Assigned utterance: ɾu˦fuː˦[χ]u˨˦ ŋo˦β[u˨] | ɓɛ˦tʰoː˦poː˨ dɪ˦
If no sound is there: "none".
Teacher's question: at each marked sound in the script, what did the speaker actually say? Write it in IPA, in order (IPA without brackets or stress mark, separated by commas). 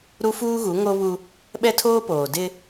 ɣ, u˦